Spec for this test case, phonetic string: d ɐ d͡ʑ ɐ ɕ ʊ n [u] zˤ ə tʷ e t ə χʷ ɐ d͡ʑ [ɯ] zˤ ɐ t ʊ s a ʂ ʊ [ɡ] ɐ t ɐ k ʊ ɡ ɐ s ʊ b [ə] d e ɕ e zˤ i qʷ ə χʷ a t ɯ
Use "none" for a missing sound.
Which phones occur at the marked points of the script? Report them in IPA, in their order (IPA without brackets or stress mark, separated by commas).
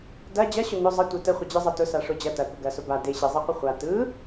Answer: ʊ, ɯ, d͡ʑ, a